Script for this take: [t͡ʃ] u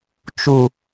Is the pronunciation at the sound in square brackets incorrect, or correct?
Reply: correct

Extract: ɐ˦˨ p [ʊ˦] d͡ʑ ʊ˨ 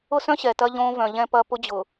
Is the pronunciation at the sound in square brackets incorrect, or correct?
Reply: correct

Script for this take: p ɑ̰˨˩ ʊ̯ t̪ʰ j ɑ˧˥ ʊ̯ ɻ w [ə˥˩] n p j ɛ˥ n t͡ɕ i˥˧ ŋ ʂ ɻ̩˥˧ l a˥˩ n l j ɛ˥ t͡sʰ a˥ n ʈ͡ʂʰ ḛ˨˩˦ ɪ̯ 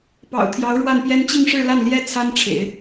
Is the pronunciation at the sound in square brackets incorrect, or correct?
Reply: incorrect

